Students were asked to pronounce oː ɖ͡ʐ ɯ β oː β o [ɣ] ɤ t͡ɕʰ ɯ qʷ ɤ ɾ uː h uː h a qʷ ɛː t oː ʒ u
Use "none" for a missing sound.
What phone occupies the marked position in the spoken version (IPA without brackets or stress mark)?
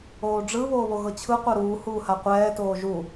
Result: ɣ